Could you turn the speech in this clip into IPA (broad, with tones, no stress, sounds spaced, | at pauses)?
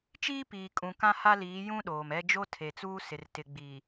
t͡ʃ iː˦ p iː˨ kʼ ũ˨ k ã˦ h a˦ l iː˨˦ j ũ˦ ɗ oː˨ m ɛ˦ d͡ʒ o˦ tʰ e˨ t͡s uː˦ s ɪ˨ r t ɪ˨ ɡ͡b i˨